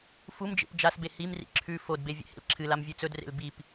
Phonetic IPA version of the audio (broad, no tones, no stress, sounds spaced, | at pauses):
f u m d͡ʒ ḛ p d͡ʒ a s b e h i m r ḭ ǁʰ ʉ f o d b e vʲ ḛ h ḛ l ǁʰ ɨ l a m vʲ ʉ t͡s ɵ d r ḛ l b i p